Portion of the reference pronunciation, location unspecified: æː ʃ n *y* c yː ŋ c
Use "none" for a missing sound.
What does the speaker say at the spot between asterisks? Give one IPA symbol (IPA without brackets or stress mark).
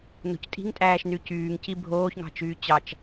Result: y